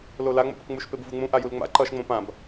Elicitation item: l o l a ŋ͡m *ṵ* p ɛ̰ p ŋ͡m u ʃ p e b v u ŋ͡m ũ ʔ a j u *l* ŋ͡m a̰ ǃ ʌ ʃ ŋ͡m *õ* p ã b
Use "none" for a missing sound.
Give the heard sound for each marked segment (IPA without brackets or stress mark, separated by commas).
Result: o̰, l, õ